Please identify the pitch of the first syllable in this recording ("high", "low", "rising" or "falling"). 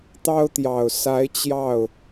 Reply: high